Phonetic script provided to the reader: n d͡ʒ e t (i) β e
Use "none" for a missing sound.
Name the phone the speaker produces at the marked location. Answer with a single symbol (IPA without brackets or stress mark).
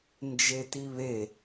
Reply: i